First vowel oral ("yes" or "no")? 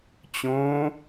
no